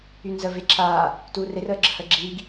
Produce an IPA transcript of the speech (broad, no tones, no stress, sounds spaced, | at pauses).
y n z ə v e ǁʰ aː | t uː r e r əː ɡ͡ǁ ə h əː ɡ͡ǁ iː ɡ